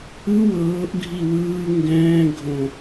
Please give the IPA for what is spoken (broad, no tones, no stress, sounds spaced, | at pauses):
ɯ w ɤː ʔ ɡʱ i w ɯː ŋ ɡ ɛ̃ː ɡʱ õ